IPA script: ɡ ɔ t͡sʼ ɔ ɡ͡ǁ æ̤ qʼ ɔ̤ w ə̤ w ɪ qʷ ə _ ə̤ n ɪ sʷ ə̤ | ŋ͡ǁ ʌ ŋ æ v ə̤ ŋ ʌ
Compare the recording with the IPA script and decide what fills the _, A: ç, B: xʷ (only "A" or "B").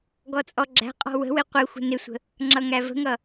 B